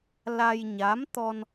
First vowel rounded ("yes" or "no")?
no